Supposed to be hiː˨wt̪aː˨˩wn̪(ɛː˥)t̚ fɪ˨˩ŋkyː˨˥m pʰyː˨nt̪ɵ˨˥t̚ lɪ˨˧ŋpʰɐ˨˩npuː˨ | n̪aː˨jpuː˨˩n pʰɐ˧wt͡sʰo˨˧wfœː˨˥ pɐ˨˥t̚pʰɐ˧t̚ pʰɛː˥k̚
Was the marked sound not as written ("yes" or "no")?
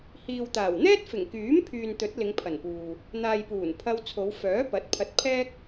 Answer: no